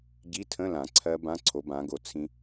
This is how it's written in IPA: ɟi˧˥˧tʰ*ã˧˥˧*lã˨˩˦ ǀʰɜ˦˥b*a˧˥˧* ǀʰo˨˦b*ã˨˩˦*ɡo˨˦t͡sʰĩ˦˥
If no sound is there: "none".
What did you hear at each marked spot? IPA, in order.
ə̃˧˥˧, ã˧˥˧, ã˨˦

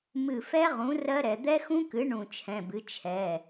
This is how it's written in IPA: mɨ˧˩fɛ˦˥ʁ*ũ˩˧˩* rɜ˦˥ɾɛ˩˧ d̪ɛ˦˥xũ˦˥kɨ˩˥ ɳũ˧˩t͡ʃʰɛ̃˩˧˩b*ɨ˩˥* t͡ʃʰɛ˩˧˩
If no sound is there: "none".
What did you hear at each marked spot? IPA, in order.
ũ˩˥, ɨ˩˥

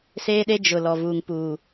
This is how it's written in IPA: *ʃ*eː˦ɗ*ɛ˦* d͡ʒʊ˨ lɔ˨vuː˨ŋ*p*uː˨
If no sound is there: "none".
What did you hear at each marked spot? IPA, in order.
s, e˦, p

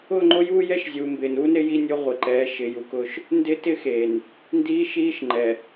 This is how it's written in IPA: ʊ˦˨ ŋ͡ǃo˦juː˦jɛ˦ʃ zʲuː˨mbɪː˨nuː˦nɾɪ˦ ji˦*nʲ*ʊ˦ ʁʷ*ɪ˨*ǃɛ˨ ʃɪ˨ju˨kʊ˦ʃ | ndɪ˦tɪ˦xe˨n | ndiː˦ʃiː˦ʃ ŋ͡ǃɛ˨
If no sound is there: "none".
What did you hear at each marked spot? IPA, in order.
nʲ, ɪ˨

